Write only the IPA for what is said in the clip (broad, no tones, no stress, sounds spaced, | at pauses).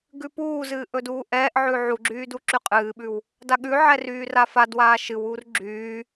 ɡ ʉ p uː z ɨː ʔ ɵ d uː ʔ ɛː ʔ ʕ ʉ ʕ u ɡ͡ǁ yː d u ǁ y qʼ ɨː ɓ ʉ w | d a ɠ ʉ ʕ ɛ r yː r a f a d w aː ʃ ɨ w uː r ɡ͡ǁ yː